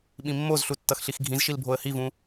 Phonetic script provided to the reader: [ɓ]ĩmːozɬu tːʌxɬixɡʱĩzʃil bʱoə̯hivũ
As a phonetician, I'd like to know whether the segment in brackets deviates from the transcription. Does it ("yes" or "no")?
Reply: no